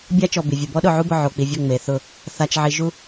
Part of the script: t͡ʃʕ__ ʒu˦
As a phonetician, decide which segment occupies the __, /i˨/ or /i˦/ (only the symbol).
i˨